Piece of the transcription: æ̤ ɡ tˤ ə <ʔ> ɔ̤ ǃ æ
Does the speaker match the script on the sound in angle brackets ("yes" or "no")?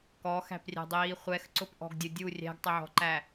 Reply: no